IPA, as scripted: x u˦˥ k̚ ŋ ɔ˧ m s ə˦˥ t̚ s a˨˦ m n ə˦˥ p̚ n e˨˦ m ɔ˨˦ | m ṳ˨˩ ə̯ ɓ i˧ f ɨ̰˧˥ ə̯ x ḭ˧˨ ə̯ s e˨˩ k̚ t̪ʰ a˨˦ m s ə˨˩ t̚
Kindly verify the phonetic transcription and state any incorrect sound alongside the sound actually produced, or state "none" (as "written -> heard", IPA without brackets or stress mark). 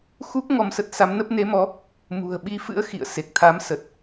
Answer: none